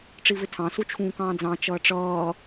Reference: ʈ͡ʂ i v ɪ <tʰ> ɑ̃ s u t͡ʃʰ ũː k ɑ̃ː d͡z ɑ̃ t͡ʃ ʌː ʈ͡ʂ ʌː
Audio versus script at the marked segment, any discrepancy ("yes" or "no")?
no